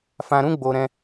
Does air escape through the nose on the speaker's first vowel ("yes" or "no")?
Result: yes